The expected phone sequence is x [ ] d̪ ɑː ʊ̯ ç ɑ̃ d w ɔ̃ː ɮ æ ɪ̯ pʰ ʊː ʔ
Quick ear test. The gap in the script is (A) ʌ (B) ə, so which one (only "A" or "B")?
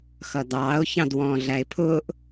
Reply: A